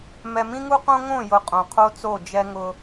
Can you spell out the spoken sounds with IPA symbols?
mɛ˨mĩ˦ŋu˦qõ˦ ŋõ˦˨jʊ˨ qʼõ˨qʰo˦t͡so˦˨ d͡ʒɛ˦ŋʊ˦

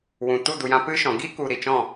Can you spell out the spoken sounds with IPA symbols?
wũ˨ tu˦˨du˨jã˧ pɨ˦ʃɔ̃˨ ɡi˦ ku˨ ɾi˨t͡ʃɔ̃˦˨

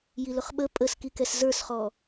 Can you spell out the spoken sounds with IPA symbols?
jilʊχɓə pʼəskikɛs zə˞sχɔ

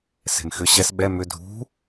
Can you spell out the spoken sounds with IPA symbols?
se̤mxʏ ɕɛs ɓɛ mʏ dʱṳ

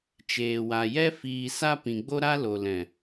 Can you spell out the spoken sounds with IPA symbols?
t͡ʃeː˨wa˨jɛ˦ fiː˨sa˧ pĩ˨ɡ͡bo˦ɾa˦ lo˨lɛ̃˨

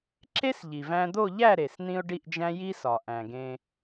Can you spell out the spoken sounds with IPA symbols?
ǁe˥sʎi˩væ̃˧d̪o˥˧ ʎæ˥˧ ɾe˩sn̪ĩ˧ʊ̯ ɖi˥˧ʔd͡ʒæ̃˥ ji˥sɒ˩ ʔæ̃˩ɡẽ˧

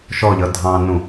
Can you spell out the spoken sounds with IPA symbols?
ʃɔʎʌ dʱɑ̃nũ

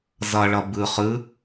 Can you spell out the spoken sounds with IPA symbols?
zɐɭɐ bɨ χɨ

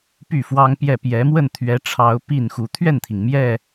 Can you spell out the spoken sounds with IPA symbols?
py˥˩fwɑ˥ŋpjɛ˥˩ pjɛ˧˥mwə˥˩nt̪ʰɥɛ˧˥ʈ͡ʂʰɑ˧˥ʊ̯ pi˥˩nxu˧˥ t̪ʰɥɛ˥˩nt̪ʰi˩ŋ mjɛ˥˩

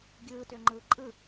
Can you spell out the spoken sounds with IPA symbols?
ɡʲɯːtøŋ͡ǃɯː ǃʼɯ

